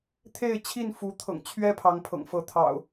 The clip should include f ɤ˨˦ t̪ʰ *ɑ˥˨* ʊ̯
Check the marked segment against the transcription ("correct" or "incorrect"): incorrect